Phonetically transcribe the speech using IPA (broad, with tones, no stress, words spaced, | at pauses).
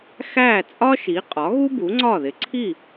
xæ˥˩ t͡sʼɒ˥ʃi˩˥ qʼɒ˩˥ɣu˥ bu˩˥ŋ͡ǀɒ˥˩ ðɪ˩˥ǀʰi˥˩